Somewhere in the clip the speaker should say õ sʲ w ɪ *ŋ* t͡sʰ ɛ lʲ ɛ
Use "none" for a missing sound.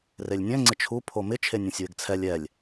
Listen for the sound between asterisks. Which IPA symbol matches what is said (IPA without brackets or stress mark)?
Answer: ɡ